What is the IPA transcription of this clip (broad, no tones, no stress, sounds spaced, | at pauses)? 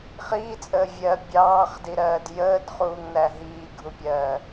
χ iː t͡sʼ əː vʲ ɜ bʲ ɑː χ d i ɾ ɜː d j əː d χ uː ŋ n æ ɦ iː ɡʱ u pʲ ɜː